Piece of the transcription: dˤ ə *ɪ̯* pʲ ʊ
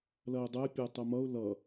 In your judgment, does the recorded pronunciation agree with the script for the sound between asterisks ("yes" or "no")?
yes